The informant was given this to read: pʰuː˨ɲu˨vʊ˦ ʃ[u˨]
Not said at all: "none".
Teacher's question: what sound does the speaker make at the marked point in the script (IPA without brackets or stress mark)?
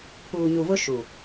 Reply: u˨